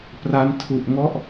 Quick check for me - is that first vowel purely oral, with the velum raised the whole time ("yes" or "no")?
yes